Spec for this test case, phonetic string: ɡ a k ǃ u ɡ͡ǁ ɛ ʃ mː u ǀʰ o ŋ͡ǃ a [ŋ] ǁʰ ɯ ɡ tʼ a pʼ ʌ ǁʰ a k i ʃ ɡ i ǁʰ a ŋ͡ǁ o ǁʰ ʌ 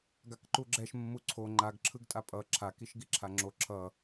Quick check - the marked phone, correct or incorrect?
incorrect